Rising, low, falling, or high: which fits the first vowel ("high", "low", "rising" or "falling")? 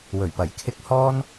low